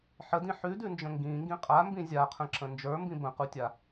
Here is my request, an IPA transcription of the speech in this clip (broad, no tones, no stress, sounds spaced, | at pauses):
ħ ə d ĩ ħ ʉ d ʉ n d͡ʒ ə̃ ŋ ɡ ĩ ŋ ɡ ĩ qʼ a m b ĩ zʲ a qʰ ə̃ ǁ ə̃ n d͡ʒ ə˞ m b ĩ b ə̃ q u tʲ a